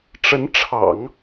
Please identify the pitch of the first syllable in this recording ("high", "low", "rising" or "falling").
rising